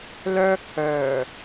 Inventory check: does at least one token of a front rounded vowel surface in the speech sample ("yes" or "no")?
yes